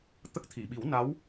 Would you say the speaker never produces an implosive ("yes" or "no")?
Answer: no